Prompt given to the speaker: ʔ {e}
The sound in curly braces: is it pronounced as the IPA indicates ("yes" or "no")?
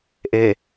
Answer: yes